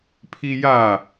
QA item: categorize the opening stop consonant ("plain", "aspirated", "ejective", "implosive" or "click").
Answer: aspirated